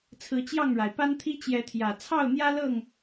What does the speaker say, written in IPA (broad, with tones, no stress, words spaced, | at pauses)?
t͡sʰɹ̩˨˦t͡ɕjɑ˥˨ŋɻa˩ɪ̯ pa˦nt̪ʰi˦ t͡ɕjɛ˨˦t̪ʰjä˨˩ t͡sʰɑ˥˨ʊ̯n̪jä˦ lɤ˥˨ŋ